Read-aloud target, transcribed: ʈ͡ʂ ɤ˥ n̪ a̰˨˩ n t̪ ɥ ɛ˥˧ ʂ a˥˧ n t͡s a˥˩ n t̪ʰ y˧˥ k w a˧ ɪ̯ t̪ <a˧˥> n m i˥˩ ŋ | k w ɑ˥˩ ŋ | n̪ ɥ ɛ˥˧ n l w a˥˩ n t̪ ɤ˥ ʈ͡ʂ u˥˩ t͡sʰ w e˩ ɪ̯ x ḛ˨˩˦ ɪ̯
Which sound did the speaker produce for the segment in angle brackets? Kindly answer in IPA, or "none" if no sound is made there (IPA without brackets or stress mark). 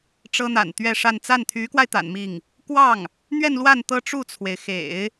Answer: a̰˨˩